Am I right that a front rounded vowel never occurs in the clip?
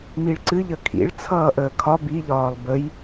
yes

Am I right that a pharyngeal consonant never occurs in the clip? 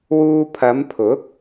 yes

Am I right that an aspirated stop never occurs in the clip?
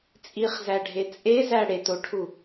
no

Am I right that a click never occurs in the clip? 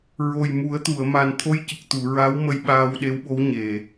yes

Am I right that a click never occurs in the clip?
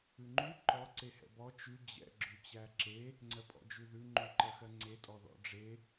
no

